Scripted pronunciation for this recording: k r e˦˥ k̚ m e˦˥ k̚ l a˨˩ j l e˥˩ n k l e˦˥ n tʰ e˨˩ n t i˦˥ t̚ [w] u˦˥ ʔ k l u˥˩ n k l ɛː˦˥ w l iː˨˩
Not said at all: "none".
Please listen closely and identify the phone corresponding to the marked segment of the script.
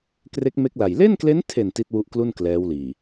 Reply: w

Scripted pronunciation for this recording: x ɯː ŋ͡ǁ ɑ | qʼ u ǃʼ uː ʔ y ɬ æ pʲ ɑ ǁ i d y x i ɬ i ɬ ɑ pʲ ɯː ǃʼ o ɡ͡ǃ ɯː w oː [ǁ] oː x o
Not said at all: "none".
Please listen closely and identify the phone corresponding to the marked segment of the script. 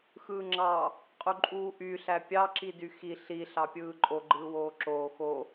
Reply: ǁ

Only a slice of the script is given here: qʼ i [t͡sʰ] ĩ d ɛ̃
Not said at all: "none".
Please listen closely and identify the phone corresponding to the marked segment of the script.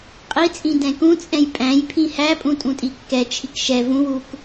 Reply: t͡sʼ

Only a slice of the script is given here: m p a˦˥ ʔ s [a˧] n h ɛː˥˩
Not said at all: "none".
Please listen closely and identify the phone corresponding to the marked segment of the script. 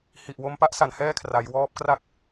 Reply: a˩˦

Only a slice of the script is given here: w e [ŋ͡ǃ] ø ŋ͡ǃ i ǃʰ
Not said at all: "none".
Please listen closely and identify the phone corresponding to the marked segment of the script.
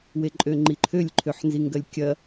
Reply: ǃʼ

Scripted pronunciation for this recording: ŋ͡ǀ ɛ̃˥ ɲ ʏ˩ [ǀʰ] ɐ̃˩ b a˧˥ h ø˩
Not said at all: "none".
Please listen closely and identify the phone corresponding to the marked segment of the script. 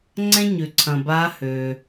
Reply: ǀʰ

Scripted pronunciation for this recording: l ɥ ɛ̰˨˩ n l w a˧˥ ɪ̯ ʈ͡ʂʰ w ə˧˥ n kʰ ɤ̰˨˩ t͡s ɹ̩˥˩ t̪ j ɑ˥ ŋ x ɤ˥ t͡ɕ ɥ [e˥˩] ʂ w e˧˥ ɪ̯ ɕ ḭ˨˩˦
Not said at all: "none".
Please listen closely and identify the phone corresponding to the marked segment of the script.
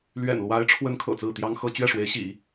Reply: ɛ˥˩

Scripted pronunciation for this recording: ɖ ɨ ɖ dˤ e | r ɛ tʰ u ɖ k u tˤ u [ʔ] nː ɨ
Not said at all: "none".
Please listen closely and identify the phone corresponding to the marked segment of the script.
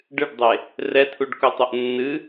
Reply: ʔ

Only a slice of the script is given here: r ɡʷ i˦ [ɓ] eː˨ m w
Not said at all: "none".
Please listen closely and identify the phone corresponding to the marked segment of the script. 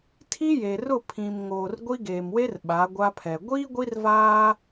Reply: ɡ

